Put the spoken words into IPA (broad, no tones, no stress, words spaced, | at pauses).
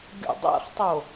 ɡʲo̰dˤɛ̰χtˤo